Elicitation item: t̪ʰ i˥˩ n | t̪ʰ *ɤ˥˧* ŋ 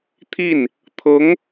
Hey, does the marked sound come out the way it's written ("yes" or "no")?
no